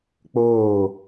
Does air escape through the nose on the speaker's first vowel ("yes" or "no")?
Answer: no